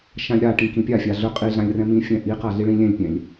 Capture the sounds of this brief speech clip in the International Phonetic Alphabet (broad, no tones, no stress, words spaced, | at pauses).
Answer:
ʃãlʲɾaʈĩ kĩpʲafʲa ɮɵ qʼiɮãlʲ rɛ̃mĩfʲɛ̃ ʔiqa ɮiɭĩlʲɛ̃lʲpʲɛ̃lʲ